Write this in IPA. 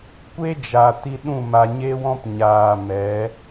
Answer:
kʷ e˦ d͡ʒ a˨ t i˧ ɗ ũ˦˨ m a˨ ɲ e˧ w ɔ̃˧ p ɲ aː˨ m ɛ˨˦

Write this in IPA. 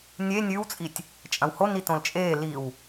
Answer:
nʲ e nʲ ʉ w t͡sʼ i tʲ | t͡ʃʼ ɐ̃ w h o n i t õ l t͡ʃʼ eː l i w

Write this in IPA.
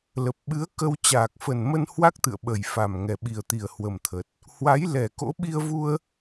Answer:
l ə˨˩ p̚ ɓ ɨ˨˦ ə̯ k ə˧ w t͡ɕ aː˨˩ k̚ f ə˨˩ n m ə˧ n h w a˦˥ k̚ t̪ ɨ̰˧˨ ə̯ ɓ ə˨˩ j f a˨˩ m ŋ ɛ˨˩ ɓ i˨˩ ə̯ t̪ i˨˩ ə̯ h w ə˨˩ m t̪ʰ ə˨˩ t̚ | h w a˨˦ j l ɛ˨˩ k o̰˧˥ ɓ i˧ ə̯ v u˧ ə̯

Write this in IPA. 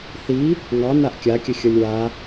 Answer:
θ i | ŋ ɑ n a ʔ kʲ a kʲ ə xʲ ʌ lʲ w a

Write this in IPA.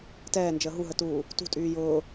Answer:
t ɛː n d͡ʒ əː ɦ u ɦ ə t uː | t ṳ tʼ yː j ʊː

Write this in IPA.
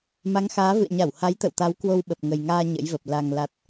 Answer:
m a˨˦ ŋ x aː˨˦ v ɨ̰˧˨ ə̯ ɲ a˧˩ w h a˨˦ j t̪ ə̰˧˨ w t̪ a˨˦ w k w o˧ w ɓ ə˨˩ p̚ ŋ ə˨˩ j ŋ aː˧ ɲ ə̰˧˥ j v ə˨˩ p̚ l a˨˩ ŋ l a˨˩ t̚

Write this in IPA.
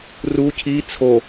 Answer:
r u cʰ i t͡sʰ o

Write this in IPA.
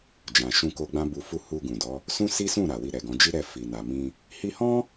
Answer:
d͡ʒ ã˨ ʃ ũ˧ k o˧ ɡ͡b ã˦ b u˧ f u˦ h u˧ ɡ ũ˨ d ɔ˨˦ | s ũ˦ s i˦ s ũ˦˨ ɾ a˨ w i˧ ɾ ɛ˨ ɡ ɔ̃˨˦ d͡ʒ i˦ ɾ ɛ˦˨ f i˨ n a˨ m ĩ˧ | h i˧ h ɔ̃˦

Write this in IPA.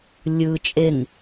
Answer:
lʲ ɯ t͡ʃʼ e ŋ

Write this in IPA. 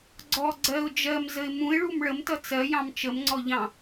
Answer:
ɡ͡ǀ ɔ ɡ͡ǀ ɜ ʊ̯ d͡ʒ ɜ m z ə ɪ̯ m ũ ɪ̯ ɭ u m ɭ ə m t ʌ t͡s ɜ j ɑ̃ m t͡ʃ ə m ŋ͡ǀ ɔ ʎ ɑ̃

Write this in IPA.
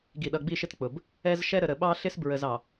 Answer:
ɡ i˨ ɗ ʌ˨ ɡ͡b i˦˨ ʃ ɪ˦ t k͡p ʊ˨ b | ɛ˦ z ʃ ɛ˦ ɾ ə˨ ɾ ə˨ ɓ ɑ˦ ɬ ɪ˦ s b ɹ ə˨ z ɑ˨

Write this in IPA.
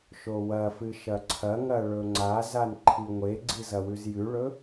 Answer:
ʃ o w ɐ f ɨ ʃ ɐ ǀʰ ɐ ŋ ɐ ɭ ɵ ŋ͡ǀ a z a n ǃʰ i ŋʷ e ɡ͡ǀ i z ɐ w ʉ z j ʉ ɭ ɵ

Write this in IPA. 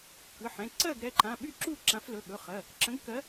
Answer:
k ɯ˩˧˩ ħ ɛ̃˩˧˩ ǀ ɜ˥˨ ɡ ɾ ɛ˩˧˩ ǃ ã˩˧˩ ɓ y˥˨ ǁ u˥˨ ǁ ã˨˦ f l ɵ˩˧˩ ɠ ɵ˩˧˩ χ ɜ˩˧˩ | ǁ ə̃˨˦ ɡ k ɜ˨˦

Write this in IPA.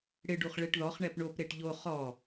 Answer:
ɽ ɪ ɖ u χ ɭ e ʈ ð ɔ χ ɳ ɛ p ɳ o p ɾ e ʈ ʎ o χ ɔ

